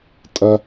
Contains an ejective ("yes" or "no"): yes